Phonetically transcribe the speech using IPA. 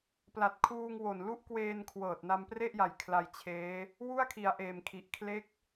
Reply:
pla˨˩t̚kʰuː˧ŋwo˨˩n lu˦˥ʔkweː˧n kʰwɤː˨˩t̚na˧mpre˥˩ʔja˨˩j kʰla˧jt͡ɕʰeː˦˥ | wu˥˩a̯kʰi˨˩a̯ʔeː˨˩mkʰi˨˩ʔ kʰle˦˥k̚

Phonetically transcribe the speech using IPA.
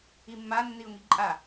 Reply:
imːa nːiʊ̯ŋiǃʼa

